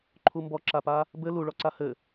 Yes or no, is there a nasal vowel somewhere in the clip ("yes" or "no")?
no